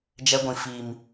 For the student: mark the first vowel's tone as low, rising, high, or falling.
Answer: high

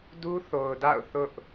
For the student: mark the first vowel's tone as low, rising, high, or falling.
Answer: high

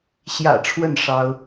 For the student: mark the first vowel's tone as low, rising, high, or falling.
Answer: low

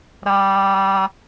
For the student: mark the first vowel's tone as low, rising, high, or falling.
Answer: high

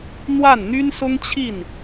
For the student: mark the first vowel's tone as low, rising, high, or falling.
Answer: falling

